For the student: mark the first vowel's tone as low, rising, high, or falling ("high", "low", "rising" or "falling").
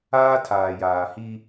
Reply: high